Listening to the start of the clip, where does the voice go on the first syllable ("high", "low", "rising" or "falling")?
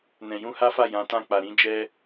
low